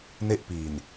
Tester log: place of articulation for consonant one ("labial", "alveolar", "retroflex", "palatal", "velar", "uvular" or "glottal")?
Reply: alveolar